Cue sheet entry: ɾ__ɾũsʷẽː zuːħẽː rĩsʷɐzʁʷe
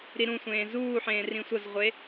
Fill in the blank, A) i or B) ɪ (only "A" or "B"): A